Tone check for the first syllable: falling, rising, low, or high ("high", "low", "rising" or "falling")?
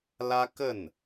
high